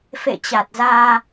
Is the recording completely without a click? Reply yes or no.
yes